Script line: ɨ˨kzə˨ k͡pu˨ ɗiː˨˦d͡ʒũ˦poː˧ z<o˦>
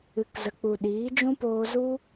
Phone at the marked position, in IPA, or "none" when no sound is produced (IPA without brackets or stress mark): u˦